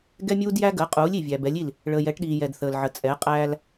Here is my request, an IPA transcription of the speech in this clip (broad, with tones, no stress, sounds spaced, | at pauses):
ɡ ɛ˦ mʲ uː˦ d j æ˦ ɡ əː˨˦ qʼ uː˨˦ lʲ i˨ vʲ æ˨ b ɛ˨˦ lʲ i˦˨ l | ɭ əː˨ j ɛ˨˦ ʈ ɗ iː˨ j ɛ˨ d θ əː˨ l ʕ ə˨ t͡sʼ ɛ˨˦ qʼ æː˦ l